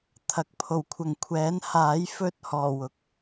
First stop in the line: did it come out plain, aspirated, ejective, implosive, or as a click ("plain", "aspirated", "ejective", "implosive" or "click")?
aspirated